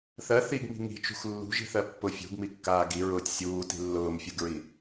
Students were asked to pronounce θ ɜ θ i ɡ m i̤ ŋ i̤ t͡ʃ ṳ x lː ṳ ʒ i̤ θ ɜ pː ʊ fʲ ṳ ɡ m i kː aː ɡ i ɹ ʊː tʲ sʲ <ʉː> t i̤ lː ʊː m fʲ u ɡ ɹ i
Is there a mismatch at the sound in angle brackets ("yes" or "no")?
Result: yes